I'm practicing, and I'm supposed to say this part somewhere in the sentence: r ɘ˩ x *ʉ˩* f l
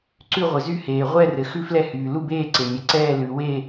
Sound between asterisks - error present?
yes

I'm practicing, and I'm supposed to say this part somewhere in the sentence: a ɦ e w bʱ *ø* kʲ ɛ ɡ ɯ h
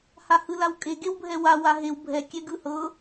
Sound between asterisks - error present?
yes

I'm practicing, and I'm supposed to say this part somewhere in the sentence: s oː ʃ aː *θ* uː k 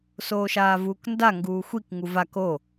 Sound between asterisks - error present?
yes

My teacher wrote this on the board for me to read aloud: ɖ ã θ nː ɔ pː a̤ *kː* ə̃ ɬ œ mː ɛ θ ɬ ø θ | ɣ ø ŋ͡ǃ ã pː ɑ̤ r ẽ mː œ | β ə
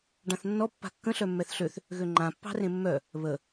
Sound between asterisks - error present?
no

